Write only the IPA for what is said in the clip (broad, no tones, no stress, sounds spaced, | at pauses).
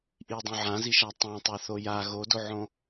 ʔ i dˤ õ ʕ ã z i ʃ a tˤ ã tˤ ə˞ θ o j a ɣ o d o ʕ õ